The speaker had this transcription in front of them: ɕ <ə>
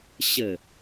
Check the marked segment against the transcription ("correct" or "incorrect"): correct